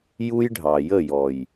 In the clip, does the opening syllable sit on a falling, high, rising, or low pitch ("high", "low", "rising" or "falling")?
high